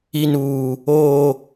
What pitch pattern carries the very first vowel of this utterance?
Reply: high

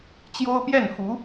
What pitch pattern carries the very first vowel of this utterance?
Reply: high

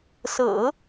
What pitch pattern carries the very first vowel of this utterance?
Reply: low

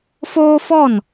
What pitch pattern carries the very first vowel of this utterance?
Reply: high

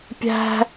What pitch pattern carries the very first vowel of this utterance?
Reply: high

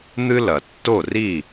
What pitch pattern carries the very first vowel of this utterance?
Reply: high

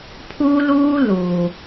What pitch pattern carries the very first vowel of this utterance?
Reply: high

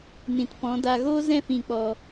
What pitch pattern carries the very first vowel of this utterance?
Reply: low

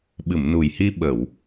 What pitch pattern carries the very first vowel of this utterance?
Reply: low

